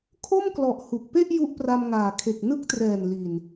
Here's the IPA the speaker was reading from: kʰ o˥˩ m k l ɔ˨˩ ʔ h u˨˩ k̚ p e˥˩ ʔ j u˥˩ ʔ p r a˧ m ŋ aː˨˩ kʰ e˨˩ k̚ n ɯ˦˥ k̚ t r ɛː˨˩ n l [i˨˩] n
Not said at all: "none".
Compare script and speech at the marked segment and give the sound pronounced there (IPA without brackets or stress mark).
i˨˩